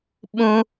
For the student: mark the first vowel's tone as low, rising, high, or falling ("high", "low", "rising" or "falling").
high